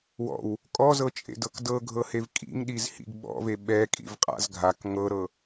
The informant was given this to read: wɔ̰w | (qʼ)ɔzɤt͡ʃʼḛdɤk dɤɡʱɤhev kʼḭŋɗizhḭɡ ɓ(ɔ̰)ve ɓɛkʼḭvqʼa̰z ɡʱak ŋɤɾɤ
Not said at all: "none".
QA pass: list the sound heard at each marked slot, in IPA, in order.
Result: kʼ, ɔ̰

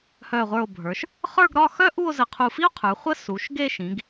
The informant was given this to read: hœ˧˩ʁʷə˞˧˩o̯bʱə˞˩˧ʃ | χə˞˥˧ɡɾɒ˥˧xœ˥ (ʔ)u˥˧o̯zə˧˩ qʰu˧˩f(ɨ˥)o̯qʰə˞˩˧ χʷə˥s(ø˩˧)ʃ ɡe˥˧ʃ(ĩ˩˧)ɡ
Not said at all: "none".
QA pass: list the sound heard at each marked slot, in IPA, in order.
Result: ʔ, i˥, u˩˧, ĩ˩˧

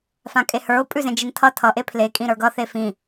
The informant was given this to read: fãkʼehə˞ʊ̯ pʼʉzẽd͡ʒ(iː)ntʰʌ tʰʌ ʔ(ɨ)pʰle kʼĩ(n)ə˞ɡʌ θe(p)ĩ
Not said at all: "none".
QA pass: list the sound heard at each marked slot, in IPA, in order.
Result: i, e, ɾ, f

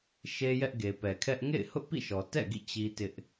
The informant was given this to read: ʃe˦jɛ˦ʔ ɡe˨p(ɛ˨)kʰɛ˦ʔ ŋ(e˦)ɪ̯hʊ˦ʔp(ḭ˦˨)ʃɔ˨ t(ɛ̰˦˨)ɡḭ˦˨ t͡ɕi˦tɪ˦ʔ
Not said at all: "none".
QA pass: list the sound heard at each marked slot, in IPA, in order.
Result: ɛ˨, ḛ˦˨, ḭ˦˨, ɛ̰˦˨

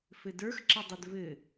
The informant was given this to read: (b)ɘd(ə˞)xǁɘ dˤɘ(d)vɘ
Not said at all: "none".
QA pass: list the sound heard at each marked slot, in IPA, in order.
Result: f, ə˞, d

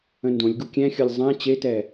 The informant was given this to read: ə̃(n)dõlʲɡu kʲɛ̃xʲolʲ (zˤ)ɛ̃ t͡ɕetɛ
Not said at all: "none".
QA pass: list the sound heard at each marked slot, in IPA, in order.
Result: n, zˤ

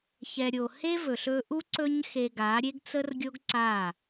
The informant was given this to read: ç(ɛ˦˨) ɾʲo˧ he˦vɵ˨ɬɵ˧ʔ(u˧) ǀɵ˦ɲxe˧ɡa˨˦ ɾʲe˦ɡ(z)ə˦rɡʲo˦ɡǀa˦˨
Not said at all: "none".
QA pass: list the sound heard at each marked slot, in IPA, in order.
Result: ɛ˧, u˦, t͡s

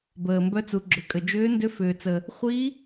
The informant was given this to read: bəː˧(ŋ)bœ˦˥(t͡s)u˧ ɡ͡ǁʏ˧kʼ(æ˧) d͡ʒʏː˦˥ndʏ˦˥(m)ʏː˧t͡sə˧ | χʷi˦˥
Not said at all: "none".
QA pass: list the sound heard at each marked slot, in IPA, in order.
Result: m, t͡s, ə˧, f

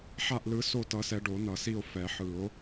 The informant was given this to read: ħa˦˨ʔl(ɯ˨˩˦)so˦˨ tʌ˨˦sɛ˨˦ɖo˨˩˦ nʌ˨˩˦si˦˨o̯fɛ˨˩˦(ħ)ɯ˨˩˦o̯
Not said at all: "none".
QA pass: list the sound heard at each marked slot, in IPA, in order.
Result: ɯ˨˦, ħ

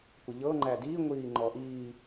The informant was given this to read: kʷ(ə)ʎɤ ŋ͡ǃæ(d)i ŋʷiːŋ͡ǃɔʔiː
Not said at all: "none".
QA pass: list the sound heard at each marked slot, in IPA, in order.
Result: ə, d

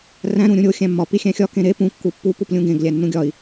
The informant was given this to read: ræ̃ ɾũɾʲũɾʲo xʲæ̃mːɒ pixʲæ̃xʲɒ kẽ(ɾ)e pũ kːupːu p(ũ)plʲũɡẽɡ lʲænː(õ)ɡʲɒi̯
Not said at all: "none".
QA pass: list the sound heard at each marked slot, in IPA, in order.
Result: ɾ, u, ũ

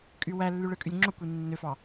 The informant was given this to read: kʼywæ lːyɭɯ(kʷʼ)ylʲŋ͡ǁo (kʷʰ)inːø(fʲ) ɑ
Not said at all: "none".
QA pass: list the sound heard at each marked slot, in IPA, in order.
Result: kʼ, kʷ, f

